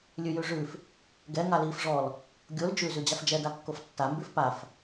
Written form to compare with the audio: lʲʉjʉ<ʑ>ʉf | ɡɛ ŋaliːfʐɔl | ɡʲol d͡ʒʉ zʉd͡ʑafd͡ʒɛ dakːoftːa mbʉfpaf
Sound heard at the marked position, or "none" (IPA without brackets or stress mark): ʐ